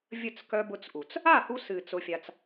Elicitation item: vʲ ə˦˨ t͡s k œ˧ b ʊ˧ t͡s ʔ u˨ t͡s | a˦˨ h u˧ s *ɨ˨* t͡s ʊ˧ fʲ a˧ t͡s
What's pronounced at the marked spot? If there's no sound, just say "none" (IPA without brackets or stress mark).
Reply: ɨ˨